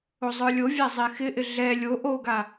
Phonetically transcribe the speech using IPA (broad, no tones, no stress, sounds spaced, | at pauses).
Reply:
o zˤ ə˞ lʲ o vʲ a zˤ ɛ x ɪ ʔ ɪ ɮ ɛ lʲ o ʔ o ɡ a